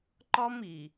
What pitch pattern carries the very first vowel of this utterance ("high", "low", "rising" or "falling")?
high